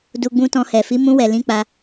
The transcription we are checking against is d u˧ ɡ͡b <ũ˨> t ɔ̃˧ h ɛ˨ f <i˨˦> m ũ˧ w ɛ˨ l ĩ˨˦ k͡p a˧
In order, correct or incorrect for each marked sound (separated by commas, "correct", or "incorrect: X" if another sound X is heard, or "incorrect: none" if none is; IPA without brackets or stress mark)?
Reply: incorrect: ũ˧, correct